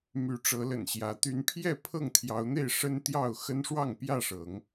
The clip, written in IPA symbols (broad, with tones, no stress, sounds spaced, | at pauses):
m y˨˦ ʈ͡ʂ ɤ˨˦ l ə̰˨˩ n ɕ j ä˨˦ t̪ y˨˦ n pʰ j ɛ˥˨ pʰ ɤ˥˨ ŋ t̪ʰ j ɑ˨˦ ʊ̯ n̪ e˥˨ ɪ̯ ʂ ə˦ n t̪ j ɑ˥˨ ʊ̯ x ə˦ n ʂ w ɑ˥˨ ŋ p j ä˥˨ ʂ ɤ˨˦ ŋ